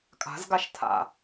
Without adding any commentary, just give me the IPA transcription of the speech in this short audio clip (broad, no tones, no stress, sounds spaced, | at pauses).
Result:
kʼ a̤ z ɡ a ʃ tʰ a̰